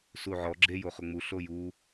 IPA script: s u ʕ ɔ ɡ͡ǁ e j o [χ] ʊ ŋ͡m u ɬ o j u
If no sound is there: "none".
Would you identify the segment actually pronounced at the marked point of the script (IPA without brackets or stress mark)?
χ